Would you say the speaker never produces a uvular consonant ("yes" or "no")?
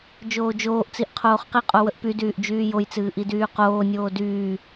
no